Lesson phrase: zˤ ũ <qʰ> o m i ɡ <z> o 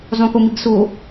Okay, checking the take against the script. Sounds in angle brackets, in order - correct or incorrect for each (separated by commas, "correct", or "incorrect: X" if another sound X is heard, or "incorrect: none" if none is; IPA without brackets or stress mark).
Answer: incorrect: k, incorrect: s